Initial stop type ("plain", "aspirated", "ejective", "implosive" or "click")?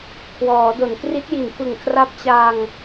aspirated